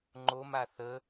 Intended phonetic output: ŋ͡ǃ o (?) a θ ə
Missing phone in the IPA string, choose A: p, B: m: B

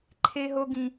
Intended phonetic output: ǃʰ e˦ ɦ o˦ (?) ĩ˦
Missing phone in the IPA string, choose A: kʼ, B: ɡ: B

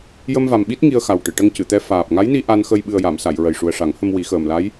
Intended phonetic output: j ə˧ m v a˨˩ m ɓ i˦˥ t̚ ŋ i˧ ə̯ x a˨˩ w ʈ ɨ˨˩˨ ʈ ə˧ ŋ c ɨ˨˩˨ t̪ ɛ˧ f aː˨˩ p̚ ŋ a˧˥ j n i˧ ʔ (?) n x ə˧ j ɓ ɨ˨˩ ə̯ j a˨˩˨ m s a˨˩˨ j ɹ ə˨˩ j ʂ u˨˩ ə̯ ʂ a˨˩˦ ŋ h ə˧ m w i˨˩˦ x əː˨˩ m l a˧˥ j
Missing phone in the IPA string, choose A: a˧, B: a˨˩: A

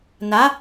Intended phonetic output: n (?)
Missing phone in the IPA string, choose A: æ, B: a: B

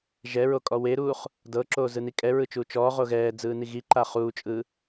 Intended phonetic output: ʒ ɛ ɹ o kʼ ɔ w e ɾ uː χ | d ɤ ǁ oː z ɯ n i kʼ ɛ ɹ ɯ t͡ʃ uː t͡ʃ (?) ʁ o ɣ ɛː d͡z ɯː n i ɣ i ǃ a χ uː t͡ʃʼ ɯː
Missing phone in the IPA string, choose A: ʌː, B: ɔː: B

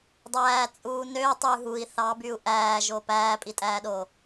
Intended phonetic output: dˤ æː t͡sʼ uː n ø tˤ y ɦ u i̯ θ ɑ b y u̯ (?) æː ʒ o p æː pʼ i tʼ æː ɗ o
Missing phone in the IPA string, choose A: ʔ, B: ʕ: A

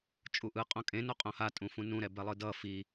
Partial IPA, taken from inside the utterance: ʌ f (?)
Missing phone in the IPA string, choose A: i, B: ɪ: A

